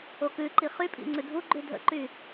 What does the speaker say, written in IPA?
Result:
o k ʉ ǃ i χ y pʼ ḭ ŋ͡ǀ ʉ dʱ u ɡ͡ǃ ʉ dʱ ə̰ ǃ y

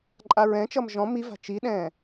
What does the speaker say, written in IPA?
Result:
ǃʼ a ɹ ɛ̃ t͡ʃ ʌ m ʒ ɔ̃ m i v a̤ t͡ʃ i ɗ ɛ̃ː

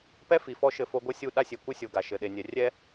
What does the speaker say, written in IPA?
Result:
p ɛ˦ f i˨ f ɔ˦ ʃ ɘ˦ f o˦ ɡʷ ɘ˦ sʲ u˦˨ ɗ a˦ sʲ e˨ kʷ ɨ˦ sʲ o˨ ɡ a˨ ʃ ɘ˨ ɗ e˨ nʲ ɛ˨ rʲ ɛ˦

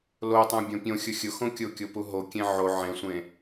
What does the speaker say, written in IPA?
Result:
l o tˤ õ bʲ õ pʲ õ xʲ ʊ xʲ ʊ x õ kʲ ʊ kʲ o p u ɦ o kʲ ẽ ʕ o ʕ ẽ sʷ ẽ

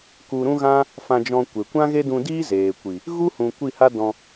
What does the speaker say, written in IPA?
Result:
k u˧ ɾ ũ˦ ɣ ã˦ | f ã˧ d͡ʒ ɔ̃˧ kʷ e˨ kʷ ã˦ ɣ e˦ d ũ˧ d iː˦ z eː˨ kʷ i˨ | ɣ u˦ h ũ˨ kʷ i˦˨ h a˦ d ɔ̃˧

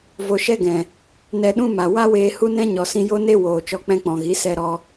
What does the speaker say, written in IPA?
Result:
v o˧ ʃ ɛ˦ ɡ ɛ̃˨ | n ɛ˧ ɗ ũ˦ m a˨ w a˦ w eː˧ h u˦ n ɛ̃˦ ɲ ɔ˨ s ĩ˧ j o˦ n e˦ w oː˨ t͡ʃ ɔ˧ k͡p ɛ̃˧ k͡p ɔ̃˨ ɣ i˨˦ s ɛ˧ ɾ ɔ˧

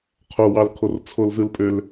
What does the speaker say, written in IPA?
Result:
qʰ o w ɑ l kʰ o r t͡sʰ o l z ɯ l pʼ ø l

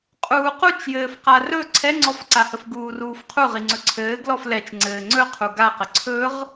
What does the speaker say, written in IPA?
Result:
qʼ uː q u t͡ʃ j ɘː f q a r ɵ ǀʰ ɛ ŋ͡ǀ ɔ f ǀ a h ə f ɡ uː r uː f qʰ u ʁ i ŋ͡ǀ ɵ ǀʰ ɘː ɡ l ɔ f l ɛ t͡ʃ ŋ͡ǀ ɘː ŋ͡ǀ ɵ qʰ u ɡ a q ə ǀʰ ɵ ʁ

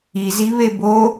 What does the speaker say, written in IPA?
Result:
i z i β e b o

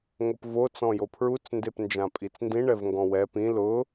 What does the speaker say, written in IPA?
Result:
ŋ o p v o t͡s ɔ̃ j o pʰ ɹ u t͡s n d e p n d͡ʒ ã pʼ i t͡s n d ĩ ɳ ɛ v ŋ ɡ ɔ̃ w ɛ p ĩ l ʊ

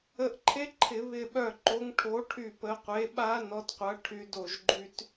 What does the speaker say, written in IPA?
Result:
ə˧˩ ʔ ǃʰ e˦˥ ǃʰ ɪ˧˩˧ β ɪ˧˩ ɓ œ˧˩ ǃ o˨˦ ŋ ʈʰ o˨˦ ʈʰ y˧˩ p ə˨˦ qʷ e˨˦ ɓ a˦˥ n ɔ˨˦ d qʷ ɐ˨˦ ʈʰ y˨˦ d o˧˩ ʒ ɡ͡ǃ y˦˥ t

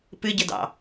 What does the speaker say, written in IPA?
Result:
p ɨ ɟ ə d ɑ̰

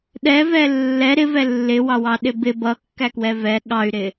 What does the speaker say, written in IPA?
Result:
ɗ ɛ v ɛ lː ɛ ɾ ɪ v ɛ lː ɪ w ɑ w ɑ ɗ ɪ b ɪ b ʌ kː æ k w ɛ v ɛ ɠ ɑ y̯ ɾ ɪ

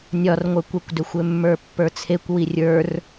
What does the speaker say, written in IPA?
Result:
nʲ ɒ r ŋʷ ə˞ kʷ ɛ kʷ d ø xʷ ø mː ə˞ pː ə˞ t͡sʰ e kʷ w i rʲ ə˞ r

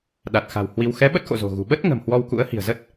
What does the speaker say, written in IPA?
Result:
ɗ a˨˩ t̚ x a̤˨˩ w h w i˧ w x ɛ˨˦ ɓ ə˦˥ t̚ x o̰˧˨ z o̤˨˩ ɣ ṳ˨˩ ɓ ə˦˥ t̚ ŋ ə̤˨˩ m h w ɔ˧ w k ṵ˧˥ ə̯ h i̤˨˩ ə̯ z ə˦˥ t̚

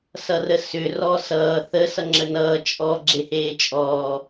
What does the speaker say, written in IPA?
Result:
s ʌ r ə s ʏ r ɔ s ʌː θ ə s ʌ ŋ͡ǁ ə n ʌː t͡ʃʼ ɔ ɡ͡ǁ e h eː t͡ʃʼ ɔː

